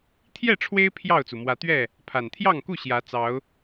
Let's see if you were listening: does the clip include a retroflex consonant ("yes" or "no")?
yes